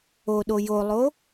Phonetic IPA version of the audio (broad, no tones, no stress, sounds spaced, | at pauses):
o ɗ o j o lˠ o